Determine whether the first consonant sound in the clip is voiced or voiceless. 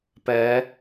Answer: voiceless